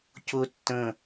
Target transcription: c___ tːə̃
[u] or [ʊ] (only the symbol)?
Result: ʊ